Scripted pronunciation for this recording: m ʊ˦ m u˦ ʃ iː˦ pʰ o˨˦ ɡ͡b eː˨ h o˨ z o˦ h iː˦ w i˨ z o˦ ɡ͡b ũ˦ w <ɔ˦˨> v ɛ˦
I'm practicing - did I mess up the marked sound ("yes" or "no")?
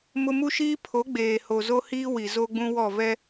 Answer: no